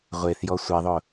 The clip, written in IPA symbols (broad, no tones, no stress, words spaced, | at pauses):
ʁʷeθjɔ sʷeðˤʊ